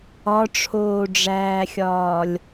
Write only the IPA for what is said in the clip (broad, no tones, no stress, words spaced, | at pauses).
ɒʈ͡ʂʰoːɖ͡ʐæːxʲɒːlʲ